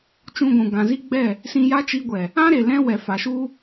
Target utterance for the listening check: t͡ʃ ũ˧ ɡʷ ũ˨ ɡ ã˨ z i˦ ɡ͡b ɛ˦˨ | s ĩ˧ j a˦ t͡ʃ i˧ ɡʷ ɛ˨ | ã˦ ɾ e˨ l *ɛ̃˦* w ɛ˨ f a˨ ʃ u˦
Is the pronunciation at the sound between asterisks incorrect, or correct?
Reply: incorrect